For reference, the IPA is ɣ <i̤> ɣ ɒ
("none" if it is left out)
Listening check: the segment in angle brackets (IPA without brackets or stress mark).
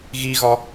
i